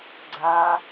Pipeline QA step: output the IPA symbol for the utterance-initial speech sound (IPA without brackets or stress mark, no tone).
ɡ͡ǀ